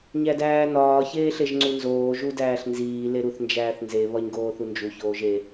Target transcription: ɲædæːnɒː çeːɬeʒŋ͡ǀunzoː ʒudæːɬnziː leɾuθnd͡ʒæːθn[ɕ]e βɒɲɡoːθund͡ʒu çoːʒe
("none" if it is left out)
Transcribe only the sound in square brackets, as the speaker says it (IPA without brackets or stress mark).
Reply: z